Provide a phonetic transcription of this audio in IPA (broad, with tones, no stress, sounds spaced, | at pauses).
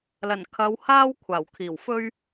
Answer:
l ɐ˨˩ n kʰ ɐ˨˧ w h aː˥ w kʷʰ aː˨˩ w kʰ iː˨˩ w f ɵ˥ ɥ